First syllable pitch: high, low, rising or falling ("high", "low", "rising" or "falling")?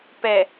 low